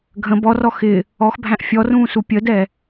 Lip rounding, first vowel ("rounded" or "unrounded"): unrounded